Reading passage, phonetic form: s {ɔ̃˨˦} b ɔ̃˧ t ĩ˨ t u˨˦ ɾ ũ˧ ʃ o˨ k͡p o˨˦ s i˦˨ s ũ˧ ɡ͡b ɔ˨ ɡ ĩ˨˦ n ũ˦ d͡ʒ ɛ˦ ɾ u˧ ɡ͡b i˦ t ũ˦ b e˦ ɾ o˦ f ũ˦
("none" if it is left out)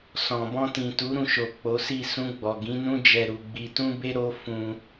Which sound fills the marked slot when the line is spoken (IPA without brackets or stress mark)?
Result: ɔ̃˨